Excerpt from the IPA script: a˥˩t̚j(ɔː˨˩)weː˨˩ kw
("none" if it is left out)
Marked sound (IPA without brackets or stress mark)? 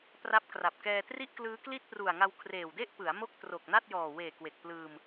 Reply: ɔː˨˩